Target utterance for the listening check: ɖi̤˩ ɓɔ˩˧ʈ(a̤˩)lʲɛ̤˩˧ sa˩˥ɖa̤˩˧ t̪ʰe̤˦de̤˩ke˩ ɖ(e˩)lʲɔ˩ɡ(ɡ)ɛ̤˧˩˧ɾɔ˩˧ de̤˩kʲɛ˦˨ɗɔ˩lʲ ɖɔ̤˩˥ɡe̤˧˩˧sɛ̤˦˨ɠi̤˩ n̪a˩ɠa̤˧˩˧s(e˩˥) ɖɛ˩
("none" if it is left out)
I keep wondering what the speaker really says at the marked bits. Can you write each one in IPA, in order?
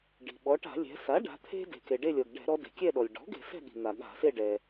a̤˧˩˧, e˦˨, ɖ, e˦˨

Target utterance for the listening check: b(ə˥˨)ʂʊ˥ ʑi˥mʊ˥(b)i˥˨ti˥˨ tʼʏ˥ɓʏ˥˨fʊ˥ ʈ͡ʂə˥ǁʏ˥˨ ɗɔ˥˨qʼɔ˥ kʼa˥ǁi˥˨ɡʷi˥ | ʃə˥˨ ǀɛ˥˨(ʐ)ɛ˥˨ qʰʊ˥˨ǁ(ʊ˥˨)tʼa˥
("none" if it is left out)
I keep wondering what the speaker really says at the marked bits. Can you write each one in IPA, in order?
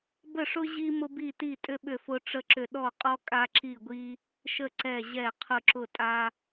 ə˥˨, b, ʑ, ʊ˥˨

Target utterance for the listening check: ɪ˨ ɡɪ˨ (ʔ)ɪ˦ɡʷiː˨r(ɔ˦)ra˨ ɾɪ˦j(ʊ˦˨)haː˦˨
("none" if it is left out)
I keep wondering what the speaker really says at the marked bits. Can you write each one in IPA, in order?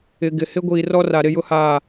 h, ɔ˦, ʊ˦

